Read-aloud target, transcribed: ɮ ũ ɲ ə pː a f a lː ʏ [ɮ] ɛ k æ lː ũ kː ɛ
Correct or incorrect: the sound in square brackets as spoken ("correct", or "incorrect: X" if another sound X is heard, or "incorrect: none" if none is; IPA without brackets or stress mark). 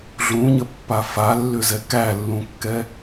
incorrect: z